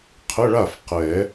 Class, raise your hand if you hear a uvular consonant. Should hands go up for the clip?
yes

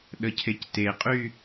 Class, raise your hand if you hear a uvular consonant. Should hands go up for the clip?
yes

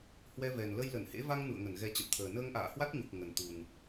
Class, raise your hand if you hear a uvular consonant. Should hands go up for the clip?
no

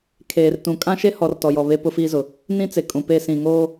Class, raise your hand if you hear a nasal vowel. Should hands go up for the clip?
yes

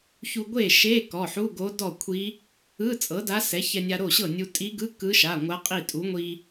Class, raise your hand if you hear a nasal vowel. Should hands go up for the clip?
no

